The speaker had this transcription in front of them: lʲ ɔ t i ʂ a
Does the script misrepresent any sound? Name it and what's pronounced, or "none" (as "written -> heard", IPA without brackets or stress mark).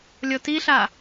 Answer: ʂ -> ɬ